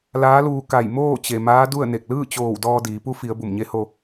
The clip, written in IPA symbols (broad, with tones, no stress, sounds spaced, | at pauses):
l aː˧˥ l uː˧ k a˧˩ j m oː˥˨ t͡ɕ e˩ m aː˧˥ d u˥˨ ə̯ n e˧˩ k̚ l ɯː˥˨ t͡ɕ oː˧˩ w d ɔː˧ d iː˩˧ p u˧˥ f i˩˧ ə̯ b u˧˩ m ɲ e˧˥ h o˧